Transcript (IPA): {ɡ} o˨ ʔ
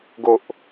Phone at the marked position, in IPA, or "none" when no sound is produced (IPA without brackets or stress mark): ɡ